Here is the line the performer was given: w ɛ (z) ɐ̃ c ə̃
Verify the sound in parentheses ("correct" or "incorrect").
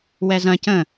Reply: correct